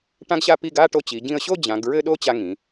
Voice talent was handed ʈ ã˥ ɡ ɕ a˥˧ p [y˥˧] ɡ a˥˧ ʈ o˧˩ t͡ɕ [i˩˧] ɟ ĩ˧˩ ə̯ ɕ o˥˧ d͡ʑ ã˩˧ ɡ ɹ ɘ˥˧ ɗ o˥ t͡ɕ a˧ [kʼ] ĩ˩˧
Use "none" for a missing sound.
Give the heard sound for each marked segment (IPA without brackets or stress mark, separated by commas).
i˥˧, i˩˧, ŋ